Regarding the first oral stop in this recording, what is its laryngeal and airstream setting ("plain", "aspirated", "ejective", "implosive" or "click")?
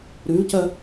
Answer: plain